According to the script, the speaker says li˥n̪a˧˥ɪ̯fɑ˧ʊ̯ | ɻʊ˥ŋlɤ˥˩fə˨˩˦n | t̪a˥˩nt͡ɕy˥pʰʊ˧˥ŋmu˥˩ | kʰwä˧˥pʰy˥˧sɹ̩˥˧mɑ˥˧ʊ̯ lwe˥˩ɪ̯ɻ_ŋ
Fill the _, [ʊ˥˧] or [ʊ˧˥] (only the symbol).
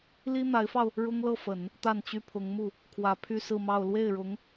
ʊ˧˥